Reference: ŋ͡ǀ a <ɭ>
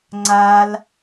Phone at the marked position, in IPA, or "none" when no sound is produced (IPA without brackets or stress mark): l